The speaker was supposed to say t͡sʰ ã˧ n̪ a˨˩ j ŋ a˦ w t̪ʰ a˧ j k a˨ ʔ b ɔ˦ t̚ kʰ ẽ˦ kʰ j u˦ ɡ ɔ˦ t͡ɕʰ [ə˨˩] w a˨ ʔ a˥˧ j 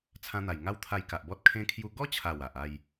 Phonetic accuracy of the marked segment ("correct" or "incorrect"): incorrect